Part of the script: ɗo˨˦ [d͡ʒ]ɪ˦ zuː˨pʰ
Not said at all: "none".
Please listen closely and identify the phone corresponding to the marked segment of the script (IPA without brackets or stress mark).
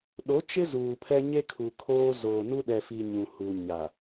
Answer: t͡ʃ